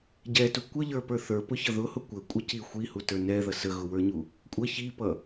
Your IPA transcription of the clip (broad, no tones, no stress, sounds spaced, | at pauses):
ɟ ɛ t u kʷ ə ʎ ə˞ p ə˞ θ ə˞ p ʊ ç ʌ ð ʊ h ʊ kʷ ə kʷʼ ə c i xʷ i h u t ə˞ n ɛ ð ʌ s ə ɣ ʊ w ə˞ ɲ u | kʷʼ ʌ ç i p ʌ